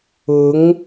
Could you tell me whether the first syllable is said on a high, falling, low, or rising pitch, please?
rising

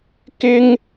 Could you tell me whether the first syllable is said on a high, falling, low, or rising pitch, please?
high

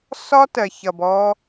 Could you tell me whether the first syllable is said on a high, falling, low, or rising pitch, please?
high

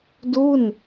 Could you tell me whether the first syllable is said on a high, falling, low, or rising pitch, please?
falling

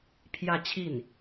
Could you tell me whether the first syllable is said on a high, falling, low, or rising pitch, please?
falling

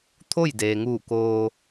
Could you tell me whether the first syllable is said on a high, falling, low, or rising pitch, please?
falling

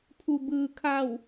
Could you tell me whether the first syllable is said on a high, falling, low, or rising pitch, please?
low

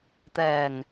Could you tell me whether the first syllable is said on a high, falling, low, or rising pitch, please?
low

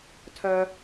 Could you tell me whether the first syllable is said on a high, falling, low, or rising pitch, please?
high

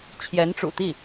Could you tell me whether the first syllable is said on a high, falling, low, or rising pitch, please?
rising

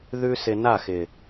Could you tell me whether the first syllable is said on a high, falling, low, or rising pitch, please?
high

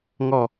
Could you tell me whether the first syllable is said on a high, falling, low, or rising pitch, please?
falling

